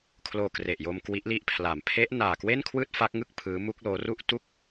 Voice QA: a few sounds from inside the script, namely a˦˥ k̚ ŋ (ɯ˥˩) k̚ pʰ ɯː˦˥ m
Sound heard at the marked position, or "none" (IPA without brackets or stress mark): ɯ˥˩